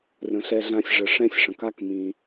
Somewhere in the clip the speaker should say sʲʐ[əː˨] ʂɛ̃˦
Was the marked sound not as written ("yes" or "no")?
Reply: yes